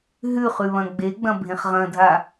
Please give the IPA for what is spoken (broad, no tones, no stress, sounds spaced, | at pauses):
ɦ ʉ χ ʉ β ɐ̃ ɡ͡b e ɡ͡b ɐ̃ bʱ ẽ χ ʁ ɐ̃ dʱ a